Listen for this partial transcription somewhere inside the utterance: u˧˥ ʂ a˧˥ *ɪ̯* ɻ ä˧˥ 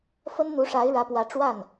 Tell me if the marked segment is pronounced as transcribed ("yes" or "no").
yes